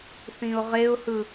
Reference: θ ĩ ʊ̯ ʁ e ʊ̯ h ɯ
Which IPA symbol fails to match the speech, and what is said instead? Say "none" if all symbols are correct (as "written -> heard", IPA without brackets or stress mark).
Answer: none